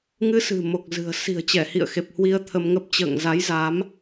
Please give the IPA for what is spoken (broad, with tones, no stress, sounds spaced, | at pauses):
ŋ ɨ˨˦ s ɨ̤˨˩ m o˨˩ k̚ z ɨ̤˨˩ ə̯ s i̤˨˩ ə̯ t͡ɕ ɛ˧˩ h ḭ˧˨ ə̯ x e˨˩ p̚ h w i˧ ə̯ t̪ʰ ə˧ m ŋ ə˦˥ p̚ t͡ɕ ə̰ː˧˨ ŋ z a˨˦ j z a˨˦ m